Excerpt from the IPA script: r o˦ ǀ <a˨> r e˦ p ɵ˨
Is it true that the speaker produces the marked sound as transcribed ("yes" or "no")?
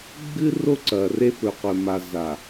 no